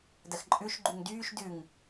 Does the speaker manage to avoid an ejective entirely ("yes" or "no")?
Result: no